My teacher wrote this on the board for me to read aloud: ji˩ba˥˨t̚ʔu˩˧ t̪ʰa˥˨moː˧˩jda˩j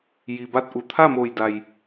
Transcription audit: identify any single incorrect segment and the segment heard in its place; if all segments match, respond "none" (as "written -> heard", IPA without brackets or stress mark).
none